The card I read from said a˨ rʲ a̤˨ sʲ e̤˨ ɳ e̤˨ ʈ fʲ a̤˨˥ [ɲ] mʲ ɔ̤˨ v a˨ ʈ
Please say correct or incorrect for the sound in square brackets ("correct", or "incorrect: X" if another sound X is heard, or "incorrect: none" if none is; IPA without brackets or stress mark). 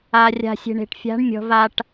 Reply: incorrect: ɳ